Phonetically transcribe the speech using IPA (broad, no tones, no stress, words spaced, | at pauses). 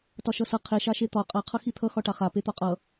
tɒʃʌsʌ qʰe ʃaʃet̪ɒ qʼa qʰʌxit̪ʰʌ xɒʈaχa pet̪ɒqʼʌ